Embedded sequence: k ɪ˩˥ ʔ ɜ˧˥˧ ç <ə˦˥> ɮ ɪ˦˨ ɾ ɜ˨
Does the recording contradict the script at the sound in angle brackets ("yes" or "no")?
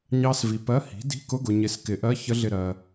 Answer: no